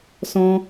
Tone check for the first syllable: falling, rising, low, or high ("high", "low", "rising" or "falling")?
high